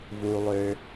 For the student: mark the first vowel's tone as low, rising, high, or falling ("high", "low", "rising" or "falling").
high